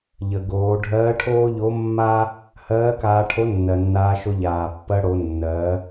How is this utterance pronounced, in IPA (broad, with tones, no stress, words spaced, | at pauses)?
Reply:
ʎə˩ɡoː˩˧ ɖʱɜː˧˥ʈʰoː˥ʎo˧˥ mːaː˥ | hɜː˧˥kaː˧ʈʰo˧˥nːɜ˩ nːaː˧ʃo˧ʎaː˩pːɜ˧ ɽo˩˧ nːɜː˩˧